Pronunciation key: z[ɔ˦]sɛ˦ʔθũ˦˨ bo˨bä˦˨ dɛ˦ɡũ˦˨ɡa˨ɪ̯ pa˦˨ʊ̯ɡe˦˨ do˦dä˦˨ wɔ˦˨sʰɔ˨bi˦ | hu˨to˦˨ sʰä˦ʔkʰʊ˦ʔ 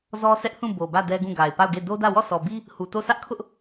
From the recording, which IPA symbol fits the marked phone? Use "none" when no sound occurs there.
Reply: ɔ˦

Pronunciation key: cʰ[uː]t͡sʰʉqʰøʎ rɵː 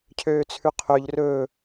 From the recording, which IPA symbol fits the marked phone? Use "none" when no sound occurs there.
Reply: øː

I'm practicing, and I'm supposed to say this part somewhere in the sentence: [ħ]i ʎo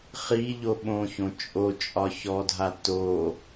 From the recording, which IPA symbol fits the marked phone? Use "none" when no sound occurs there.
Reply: χ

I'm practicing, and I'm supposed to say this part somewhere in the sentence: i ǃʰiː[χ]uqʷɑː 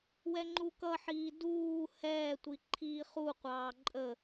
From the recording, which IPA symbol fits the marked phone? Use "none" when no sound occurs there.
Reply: χ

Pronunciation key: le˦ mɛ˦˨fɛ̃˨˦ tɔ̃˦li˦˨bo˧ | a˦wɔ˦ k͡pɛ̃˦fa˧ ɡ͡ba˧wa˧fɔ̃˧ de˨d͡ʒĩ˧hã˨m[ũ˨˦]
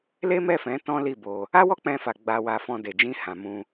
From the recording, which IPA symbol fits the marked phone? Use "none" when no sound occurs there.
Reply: ũ˧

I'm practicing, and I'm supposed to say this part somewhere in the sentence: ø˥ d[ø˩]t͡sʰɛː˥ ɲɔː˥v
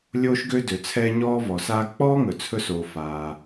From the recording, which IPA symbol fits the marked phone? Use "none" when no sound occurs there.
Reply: ø˩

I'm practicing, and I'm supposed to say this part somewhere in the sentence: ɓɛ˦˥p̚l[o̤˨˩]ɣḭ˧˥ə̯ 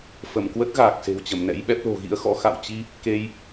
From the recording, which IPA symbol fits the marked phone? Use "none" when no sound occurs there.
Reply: o̤˨˩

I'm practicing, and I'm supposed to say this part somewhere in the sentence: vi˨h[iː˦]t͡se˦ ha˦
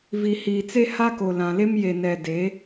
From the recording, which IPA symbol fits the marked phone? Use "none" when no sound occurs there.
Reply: iː˨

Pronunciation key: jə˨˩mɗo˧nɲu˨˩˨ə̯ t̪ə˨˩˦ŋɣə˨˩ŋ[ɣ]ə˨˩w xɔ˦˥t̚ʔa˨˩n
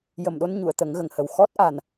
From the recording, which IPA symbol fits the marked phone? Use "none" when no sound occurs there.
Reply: h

